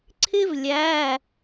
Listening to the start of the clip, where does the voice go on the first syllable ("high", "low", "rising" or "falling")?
high